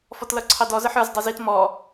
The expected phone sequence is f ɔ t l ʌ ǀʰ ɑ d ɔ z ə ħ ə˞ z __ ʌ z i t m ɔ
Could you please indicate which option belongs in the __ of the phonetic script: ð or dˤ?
dˤ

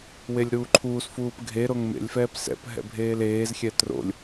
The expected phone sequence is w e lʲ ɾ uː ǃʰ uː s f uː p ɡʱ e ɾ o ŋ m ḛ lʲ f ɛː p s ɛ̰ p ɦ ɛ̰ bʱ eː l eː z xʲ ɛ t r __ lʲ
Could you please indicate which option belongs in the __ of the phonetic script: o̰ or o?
o̰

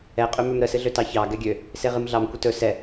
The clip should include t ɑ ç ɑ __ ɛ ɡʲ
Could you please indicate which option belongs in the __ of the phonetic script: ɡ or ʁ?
ɡ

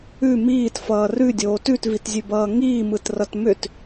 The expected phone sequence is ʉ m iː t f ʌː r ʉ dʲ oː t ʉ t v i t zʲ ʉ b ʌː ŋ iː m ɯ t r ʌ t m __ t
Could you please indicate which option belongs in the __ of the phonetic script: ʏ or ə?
ʏ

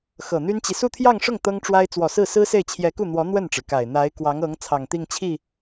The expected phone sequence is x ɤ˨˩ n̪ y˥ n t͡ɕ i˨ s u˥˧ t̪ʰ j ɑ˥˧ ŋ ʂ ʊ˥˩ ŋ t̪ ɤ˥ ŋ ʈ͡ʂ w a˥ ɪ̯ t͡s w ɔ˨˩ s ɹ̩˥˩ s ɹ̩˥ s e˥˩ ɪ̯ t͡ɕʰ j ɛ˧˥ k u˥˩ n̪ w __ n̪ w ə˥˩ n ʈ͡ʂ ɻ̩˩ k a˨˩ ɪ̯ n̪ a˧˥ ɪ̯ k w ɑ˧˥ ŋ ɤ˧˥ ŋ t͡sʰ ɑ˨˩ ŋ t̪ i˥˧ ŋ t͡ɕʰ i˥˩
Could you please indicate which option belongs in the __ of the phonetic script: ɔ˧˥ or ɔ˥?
ɔ˧˥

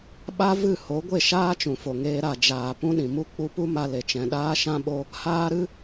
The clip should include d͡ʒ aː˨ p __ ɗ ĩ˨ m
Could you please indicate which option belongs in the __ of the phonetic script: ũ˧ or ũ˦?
ũ˦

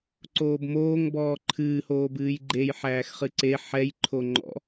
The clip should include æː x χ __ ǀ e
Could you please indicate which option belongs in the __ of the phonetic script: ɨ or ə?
ɨ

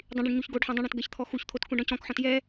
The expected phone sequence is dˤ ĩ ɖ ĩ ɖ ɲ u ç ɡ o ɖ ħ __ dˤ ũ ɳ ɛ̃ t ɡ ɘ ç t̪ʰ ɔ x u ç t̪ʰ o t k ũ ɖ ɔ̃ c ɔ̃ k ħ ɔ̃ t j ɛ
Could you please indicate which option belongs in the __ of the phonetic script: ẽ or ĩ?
ẽ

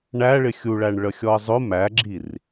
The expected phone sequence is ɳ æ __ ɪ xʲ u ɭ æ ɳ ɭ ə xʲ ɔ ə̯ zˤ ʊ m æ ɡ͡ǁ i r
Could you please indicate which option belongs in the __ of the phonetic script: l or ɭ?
ɭ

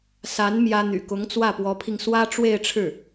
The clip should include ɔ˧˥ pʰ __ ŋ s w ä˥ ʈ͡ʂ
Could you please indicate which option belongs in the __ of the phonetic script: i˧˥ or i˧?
i˧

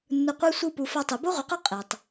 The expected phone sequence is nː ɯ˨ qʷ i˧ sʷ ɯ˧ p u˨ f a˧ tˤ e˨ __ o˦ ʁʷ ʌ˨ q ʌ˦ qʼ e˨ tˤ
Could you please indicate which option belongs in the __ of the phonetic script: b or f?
b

